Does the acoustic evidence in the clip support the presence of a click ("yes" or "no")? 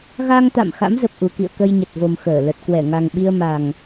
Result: no